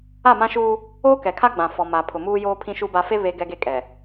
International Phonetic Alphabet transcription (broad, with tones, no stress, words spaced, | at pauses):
a˦˨mã˦ʃuː˦ | oː˦kɛ˨kʰa˦ ɡ͡bã˨ fɔ˨ ma˨ pʰʊ˨muː˦joː˦ pʰĩ˦ʃu˦ba˦ fe˦ βe˦ɡɛ˦ɡe˦ kʼɛ˨